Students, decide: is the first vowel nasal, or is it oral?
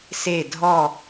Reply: oral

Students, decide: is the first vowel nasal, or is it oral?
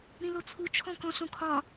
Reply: nasal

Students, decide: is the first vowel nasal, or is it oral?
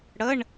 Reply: oral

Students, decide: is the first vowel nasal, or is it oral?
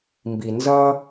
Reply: oral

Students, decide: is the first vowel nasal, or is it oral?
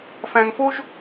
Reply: nasal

